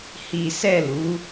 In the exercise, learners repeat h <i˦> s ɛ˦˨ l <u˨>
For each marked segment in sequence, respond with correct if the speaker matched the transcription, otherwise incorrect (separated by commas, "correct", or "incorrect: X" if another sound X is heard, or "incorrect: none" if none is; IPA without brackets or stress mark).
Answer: correct, incorrect: u˨˦